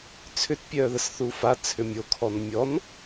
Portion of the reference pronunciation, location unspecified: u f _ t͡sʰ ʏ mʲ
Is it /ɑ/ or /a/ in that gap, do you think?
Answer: a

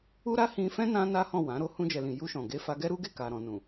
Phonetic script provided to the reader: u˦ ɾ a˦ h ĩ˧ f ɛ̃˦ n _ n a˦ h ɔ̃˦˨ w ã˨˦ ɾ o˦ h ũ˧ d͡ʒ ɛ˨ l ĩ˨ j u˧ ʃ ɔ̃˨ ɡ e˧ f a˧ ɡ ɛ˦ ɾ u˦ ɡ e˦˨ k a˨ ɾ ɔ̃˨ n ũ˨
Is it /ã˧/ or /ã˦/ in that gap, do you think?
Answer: ã˦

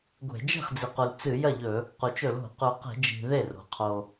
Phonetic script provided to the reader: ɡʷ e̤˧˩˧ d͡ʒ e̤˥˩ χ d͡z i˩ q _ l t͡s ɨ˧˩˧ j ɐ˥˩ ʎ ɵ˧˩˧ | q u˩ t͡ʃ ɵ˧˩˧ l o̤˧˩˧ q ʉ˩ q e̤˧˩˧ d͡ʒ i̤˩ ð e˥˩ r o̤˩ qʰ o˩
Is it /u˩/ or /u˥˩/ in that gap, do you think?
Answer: u˩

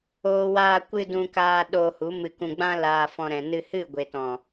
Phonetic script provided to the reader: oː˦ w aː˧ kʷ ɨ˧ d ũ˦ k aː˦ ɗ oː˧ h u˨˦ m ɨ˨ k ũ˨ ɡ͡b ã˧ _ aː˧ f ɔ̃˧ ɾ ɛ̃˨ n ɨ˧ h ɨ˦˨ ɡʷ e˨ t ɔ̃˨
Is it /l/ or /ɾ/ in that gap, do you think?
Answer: l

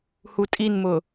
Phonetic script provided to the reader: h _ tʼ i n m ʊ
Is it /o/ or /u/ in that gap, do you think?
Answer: u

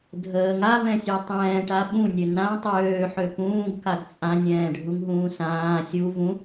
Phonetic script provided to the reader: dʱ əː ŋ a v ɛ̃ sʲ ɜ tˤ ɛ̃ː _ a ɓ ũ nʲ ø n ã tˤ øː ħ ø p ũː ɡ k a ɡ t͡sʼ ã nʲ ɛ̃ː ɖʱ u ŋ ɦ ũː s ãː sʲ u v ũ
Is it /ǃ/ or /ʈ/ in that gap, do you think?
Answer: ʈ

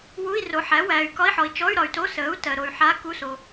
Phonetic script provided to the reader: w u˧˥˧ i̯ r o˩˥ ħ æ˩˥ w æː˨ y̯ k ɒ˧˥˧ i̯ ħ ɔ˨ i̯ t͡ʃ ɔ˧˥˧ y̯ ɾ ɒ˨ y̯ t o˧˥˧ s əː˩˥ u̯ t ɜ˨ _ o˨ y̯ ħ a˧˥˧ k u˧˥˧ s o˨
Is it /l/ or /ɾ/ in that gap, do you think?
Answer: ɾ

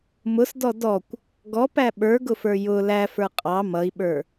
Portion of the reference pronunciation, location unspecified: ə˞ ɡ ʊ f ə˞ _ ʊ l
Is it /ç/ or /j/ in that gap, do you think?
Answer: j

